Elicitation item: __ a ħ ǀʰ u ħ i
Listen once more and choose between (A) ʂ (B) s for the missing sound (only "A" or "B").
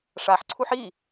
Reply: A